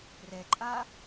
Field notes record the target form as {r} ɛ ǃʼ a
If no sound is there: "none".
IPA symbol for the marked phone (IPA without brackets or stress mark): r